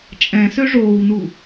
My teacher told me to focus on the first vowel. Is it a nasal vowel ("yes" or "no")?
yes